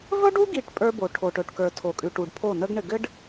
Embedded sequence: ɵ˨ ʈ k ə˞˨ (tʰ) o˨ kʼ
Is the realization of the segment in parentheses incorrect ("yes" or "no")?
no